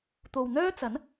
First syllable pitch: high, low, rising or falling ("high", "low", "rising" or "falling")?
low